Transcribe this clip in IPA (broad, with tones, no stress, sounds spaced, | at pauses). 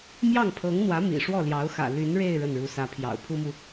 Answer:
m j ɑ˥˩ ŋ pʰ ɤ˧˥ ŋ n̪ w ä˧˥ m ḭ˨˩ ʂ w ɔ˥˩ l j ɑ˧˥ ʊ̯ x ä̰˨˩ l y˧˥ n ɻ e˥˧ ɪ̯ ɻ ə˥˩ n ɻ u˧˥ s ä˧˥ pʰ j ɑ̰˨˩ ʊ̯ pʰ u˥ m u˨